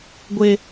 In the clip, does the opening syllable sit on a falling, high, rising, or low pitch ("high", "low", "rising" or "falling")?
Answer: high